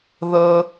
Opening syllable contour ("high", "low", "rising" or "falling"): high